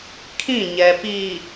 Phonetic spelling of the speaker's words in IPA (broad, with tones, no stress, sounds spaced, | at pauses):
kʰ ĩ˦˨ ɲ ɛ˨ p i˨